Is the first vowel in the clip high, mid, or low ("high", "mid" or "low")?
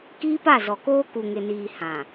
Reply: high